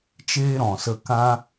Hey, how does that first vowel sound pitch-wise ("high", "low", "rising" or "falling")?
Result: high